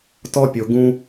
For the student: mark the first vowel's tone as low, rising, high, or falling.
high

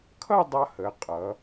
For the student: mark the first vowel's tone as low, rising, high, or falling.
falling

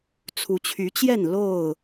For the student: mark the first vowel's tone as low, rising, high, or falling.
rising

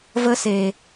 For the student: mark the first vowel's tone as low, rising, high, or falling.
high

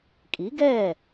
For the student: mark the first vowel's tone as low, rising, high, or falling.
rising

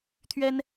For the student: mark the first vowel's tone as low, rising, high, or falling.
high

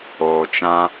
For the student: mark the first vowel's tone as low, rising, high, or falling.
low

